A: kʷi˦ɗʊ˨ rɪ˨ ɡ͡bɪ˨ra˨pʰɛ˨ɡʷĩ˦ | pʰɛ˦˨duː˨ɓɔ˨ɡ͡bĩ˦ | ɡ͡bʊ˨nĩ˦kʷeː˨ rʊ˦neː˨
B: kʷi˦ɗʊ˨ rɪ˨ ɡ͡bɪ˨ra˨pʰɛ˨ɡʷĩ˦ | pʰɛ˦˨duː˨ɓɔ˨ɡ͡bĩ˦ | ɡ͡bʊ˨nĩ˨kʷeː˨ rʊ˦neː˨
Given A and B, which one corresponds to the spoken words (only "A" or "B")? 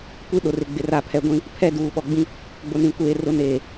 B